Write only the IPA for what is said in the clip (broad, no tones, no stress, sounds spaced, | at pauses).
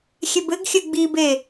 xʲ e b ɘ ɡ xʲ ɘ ɡ͡b i b e